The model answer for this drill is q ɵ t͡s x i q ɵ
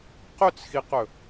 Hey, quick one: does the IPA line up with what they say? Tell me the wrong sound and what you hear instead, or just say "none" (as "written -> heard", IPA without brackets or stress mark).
none